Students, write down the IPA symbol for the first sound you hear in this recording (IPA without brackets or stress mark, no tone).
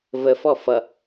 v